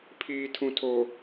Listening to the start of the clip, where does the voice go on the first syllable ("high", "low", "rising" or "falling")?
low